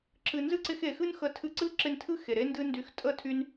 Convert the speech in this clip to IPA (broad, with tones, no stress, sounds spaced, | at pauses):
ǁ ɨ˨ n z ɨ˦ ǀ ɪ˧ x e˨ x ɨ˦ n x ə˨˦ tʰ ɨ˧ ǀ ɨ˦ ǁ ɪ˧ n tʰ ɨ˦ x e˨ ɾ e˦ n d ɨ˦ n d y˧ x tʼ ə˦˨ tʰ y˧ n